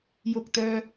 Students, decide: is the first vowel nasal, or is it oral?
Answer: oral